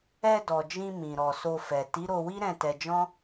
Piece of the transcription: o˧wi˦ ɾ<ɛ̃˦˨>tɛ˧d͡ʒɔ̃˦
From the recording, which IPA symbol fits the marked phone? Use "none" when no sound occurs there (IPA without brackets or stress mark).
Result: ɛ̃˦˨